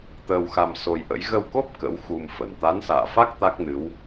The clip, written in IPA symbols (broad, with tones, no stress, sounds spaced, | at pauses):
t̪ əː˧ w x a˧ m s o˧ j ʔ ə̰˧˥ j ɣ ə˧ w k o˦˥ p̚ k ə̰˧˥ w x u˧ m f ə˧˩ n t̪ a˨˦ n s a̰ː˧˨ f a˦˥ k̚ t̪ a˦˥ k̚ n ɨ˨˦ w